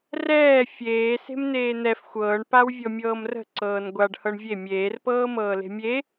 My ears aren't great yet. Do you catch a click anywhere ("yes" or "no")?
yes